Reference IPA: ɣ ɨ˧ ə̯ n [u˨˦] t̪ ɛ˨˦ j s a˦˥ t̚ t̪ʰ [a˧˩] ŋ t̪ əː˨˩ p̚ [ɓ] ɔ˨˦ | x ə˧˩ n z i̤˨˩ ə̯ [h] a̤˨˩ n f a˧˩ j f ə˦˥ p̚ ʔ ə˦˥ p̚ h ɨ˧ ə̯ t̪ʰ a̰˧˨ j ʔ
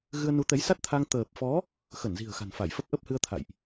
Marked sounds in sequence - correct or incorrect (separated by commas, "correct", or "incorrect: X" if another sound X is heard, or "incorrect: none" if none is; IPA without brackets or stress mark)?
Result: correct, incorrect: a˧, incorrect: f, incorrect: x